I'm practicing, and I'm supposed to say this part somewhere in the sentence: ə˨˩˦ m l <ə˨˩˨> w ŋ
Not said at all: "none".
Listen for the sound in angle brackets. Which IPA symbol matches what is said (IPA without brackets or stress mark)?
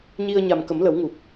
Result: ə˨˩˦